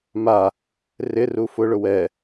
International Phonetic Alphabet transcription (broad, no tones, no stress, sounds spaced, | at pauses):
m a | r ɪ r u f ʊ ɭ ʊ w ɛ